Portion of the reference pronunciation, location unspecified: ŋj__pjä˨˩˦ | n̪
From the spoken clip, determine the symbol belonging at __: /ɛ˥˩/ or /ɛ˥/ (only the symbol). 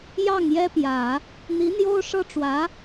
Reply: ɛ˥